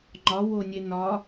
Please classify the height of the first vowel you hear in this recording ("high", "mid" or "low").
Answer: low